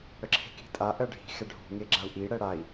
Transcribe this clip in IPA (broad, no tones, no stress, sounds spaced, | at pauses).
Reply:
ɽ ə ǁʰ e̤ k i̤ tʼ a ʔ ɜ ɖʱ i̤ x ɛ ɖʱ ṳ ŋ e ɡ͡ǁ a u̯ ʔ i ɽ ɛ ɽ a i̯